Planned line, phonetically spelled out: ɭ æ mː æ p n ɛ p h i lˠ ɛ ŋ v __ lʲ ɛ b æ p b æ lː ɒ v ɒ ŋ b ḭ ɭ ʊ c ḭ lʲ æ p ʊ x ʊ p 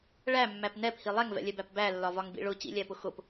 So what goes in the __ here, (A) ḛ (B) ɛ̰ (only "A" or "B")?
B